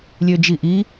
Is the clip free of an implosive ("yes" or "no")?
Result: yes